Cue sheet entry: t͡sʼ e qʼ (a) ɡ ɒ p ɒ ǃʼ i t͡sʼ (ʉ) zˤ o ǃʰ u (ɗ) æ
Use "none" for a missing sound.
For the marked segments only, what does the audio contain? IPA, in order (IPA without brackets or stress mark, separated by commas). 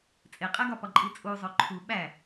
æ, u, ɓ